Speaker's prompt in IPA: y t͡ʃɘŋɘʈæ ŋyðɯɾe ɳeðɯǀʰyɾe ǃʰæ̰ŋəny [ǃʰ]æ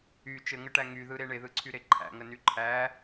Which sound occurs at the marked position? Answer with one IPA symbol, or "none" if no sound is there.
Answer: ǃʰ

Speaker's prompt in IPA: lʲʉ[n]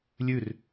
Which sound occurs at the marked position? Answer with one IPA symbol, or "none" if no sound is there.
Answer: r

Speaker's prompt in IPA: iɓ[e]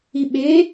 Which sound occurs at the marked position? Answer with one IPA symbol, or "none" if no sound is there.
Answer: e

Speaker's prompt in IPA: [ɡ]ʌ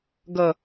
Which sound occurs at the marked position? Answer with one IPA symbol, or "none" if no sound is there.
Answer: ɡ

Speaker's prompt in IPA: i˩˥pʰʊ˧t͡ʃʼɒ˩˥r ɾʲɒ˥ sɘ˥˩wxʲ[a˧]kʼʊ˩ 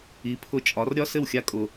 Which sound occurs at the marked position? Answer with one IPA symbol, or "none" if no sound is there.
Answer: a˧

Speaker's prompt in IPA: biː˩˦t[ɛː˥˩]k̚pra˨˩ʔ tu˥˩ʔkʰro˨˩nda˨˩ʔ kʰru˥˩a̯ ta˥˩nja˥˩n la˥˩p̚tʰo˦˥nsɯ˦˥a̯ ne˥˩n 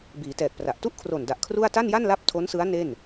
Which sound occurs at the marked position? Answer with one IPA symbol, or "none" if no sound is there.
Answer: ɛː˨˩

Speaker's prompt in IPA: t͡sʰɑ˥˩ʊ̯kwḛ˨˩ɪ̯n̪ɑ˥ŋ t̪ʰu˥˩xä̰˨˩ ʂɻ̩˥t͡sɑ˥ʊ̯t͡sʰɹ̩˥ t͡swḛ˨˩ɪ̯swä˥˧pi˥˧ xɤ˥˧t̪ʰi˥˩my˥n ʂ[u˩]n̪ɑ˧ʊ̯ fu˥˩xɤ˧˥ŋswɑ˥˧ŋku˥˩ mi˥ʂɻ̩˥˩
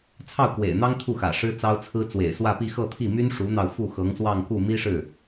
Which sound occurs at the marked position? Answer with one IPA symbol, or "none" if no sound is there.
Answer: u˧˥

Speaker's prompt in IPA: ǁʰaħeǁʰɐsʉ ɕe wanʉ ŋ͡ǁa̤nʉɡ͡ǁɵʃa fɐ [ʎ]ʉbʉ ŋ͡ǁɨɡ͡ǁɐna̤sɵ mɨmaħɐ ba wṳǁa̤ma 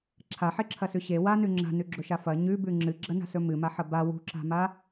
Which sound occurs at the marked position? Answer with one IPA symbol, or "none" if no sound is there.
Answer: ɲ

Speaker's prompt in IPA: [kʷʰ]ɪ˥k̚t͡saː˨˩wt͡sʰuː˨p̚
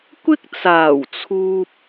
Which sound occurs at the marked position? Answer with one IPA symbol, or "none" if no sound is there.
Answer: kʷ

